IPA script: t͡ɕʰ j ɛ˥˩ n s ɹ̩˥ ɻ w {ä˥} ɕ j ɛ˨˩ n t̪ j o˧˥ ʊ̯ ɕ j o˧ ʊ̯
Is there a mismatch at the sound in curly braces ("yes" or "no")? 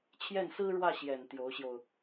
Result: yes